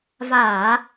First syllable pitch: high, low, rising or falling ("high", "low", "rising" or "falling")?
low